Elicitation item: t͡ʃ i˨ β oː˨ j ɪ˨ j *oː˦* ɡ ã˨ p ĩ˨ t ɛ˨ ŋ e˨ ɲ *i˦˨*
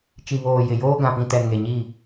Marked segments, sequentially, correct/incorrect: correct, correct

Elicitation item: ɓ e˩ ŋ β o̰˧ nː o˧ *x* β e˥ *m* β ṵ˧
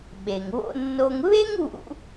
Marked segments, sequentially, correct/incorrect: incorrect, incorrect

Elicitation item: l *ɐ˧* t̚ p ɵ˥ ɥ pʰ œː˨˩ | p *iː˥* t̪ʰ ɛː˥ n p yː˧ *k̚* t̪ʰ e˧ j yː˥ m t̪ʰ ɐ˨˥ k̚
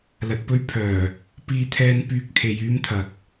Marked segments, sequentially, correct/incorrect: correct, correct, correct

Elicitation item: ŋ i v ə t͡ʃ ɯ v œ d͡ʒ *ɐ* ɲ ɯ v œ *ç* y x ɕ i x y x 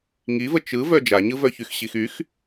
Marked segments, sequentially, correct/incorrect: incorrect, correct

